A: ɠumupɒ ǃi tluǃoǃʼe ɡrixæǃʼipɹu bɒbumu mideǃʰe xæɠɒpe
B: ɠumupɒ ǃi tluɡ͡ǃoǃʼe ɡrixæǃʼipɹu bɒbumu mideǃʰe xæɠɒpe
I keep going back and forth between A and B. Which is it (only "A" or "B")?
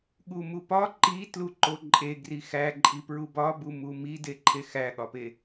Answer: A